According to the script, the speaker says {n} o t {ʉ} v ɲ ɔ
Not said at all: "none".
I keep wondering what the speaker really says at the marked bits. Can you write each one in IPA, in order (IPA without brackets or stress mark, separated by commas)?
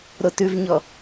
ɾ, ʉ